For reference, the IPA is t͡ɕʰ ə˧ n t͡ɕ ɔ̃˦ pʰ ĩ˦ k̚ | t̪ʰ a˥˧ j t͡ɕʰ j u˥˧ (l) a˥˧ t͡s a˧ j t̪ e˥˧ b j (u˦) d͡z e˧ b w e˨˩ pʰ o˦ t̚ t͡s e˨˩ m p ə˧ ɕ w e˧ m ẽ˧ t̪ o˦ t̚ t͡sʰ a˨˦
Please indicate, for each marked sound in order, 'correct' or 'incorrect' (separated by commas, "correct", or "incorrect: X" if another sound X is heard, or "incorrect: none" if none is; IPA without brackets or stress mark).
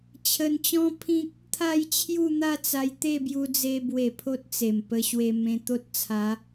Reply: incorrect: n̪, incorrect: u˧